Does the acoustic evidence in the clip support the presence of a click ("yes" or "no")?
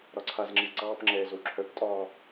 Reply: yes